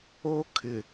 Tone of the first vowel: high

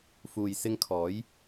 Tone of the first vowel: low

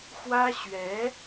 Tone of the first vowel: high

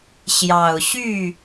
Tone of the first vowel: low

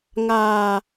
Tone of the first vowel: low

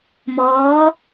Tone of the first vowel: rising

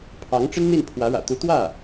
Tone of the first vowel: rising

